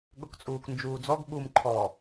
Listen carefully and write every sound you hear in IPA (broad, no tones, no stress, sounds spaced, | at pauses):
ɠ ʊ k t͡sʼ uː k n d͡ʒ uː d͡z ɔ ɡ ɓ u m ǃʰ ɔ